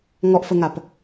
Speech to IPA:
ŋ ɔ ʔ f ə ŋ a p

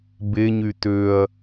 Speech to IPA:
b e ɲ y t ø ɐ̯

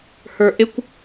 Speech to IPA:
h ə˞ ʔ ɪ kʷ

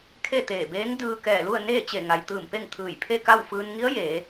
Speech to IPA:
kʰ e˥˨ t̪ eː˧˩ b eː˧˥ ŋ d ɯː˧ k ɛː˧˩ l u˥˨ ə̯ n eː˥˨ t͡ɕ e˧˩ ŋ a˩ j t̪ ɯː˧˩ m p e˥˨ ŋ t̪ʰ ɯː˧˩ j pʰ e˥˨ k a˥˨ w f ɯː˧ n ŋ i˧˥ ə̯ j eː˩˧

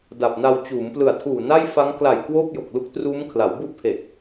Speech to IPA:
d a˨˩ p̚ n a˧ w t͡ɕ uː˩˦ m p l ɯ˨˩ a̯ tʰ uː˨˩ n a˥˩ j f a˦˥ ŋ k l a˨˩ j k w oː˥˩ p̚ j o˨˩ k̚ l u˦˥ k̚ t r uː˦˥ m kʰ l a˩˦ w b u˥˩ ʔ pʰ e˨˩ k̚

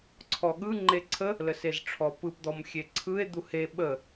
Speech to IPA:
ǀʰ ɔ ɠ ɯ ŋ͡ǃ e ǀʰ ə | l ə s e z ʈ͡ʂʰ ɔ p ɯ p d̪ ɔ m xʲ e ǀʰ ɯ e̯ d̪ u h e ɓ ə

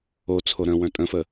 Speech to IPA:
o t͡sʰ o ɾ ə̃ w œ̃ tʼ ə̃ f ə

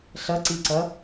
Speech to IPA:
ɬ ʌ ǀ i ǀ ʌ

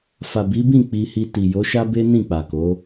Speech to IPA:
f a˨ b i˨˦ b ĩ˦˨ k͡p i˧ h i˧ t i˨ j o˨˦ ʃ a˦ b e˦ n ĩ˦˨ k͡p a˨ k o˨˦

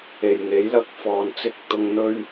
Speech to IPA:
e˨ j ŋ e˨˥ j l ɐ˧ k̚ f ɔː˨ n t͡s ɪ˨˥ k̚ t̪ ʊ˨ ŋ n̪ ɵ˧ ɥ

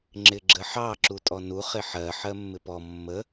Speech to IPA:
ŋ͡ǁ ɪ ɡ͡ǁ ə ħ ɑ ǁ u tʼ ɔ n u χ ɪ ħ ɜ ħ ɜ mː ɪ p ɔ mː ə

